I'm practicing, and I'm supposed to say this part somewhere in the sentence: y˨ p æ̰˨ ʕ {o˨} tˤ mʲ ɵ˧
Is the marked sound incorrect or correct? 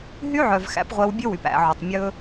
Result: correct